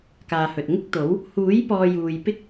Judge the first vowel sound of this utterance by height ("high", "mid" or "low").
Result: low